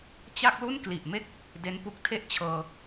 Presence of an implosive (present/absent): absent